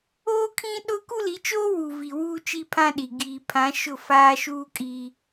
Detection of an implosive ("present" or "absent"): present